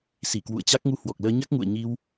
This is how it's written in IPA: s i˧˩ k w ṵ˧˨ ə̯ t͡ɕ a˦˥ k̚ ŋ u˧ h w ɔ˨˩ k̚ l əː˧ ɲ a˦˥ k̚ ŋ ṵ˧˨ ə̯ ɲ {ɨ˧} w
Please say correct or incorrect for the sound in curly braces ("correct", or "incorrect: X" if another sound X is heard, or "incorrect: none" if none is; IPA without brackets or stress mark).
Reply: incorrect: i˧